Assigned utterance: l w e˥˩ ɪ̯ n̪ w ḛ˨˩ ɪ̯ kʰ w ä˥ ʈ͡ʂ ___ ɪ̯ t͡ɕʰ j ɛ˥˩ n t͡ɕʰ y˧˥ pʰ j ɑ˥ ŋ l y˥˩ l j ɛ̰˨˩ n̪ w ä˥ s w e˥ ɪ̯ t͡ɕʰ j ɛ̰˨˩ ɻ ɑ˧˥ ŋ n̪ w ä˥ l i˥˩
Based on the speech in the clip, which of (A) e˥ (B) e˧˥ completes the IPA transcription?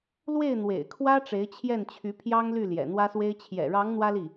B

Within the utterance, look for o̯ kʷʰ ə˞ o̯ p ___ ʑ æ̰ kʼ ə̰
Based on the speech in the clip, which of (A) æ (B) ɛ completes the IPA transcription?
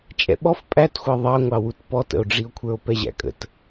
B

